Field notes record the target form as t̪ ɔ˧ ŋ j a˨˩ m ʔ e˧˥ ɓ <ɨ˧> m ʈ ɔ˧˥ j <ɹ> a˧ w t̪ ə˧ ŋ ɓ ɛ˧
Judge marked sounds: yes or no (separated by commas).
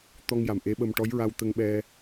no, yes